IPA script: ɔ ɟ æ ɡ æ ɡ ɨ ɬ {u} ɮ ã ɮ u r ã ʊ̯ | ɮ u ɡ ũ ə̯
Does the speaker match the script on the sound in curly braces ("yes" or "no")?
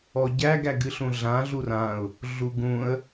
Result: no